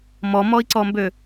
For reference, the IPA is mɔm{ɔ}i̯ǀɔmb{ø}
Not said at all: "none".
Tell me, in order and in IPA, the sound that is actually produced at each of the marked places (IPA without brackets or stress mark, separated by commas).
ɔ, ø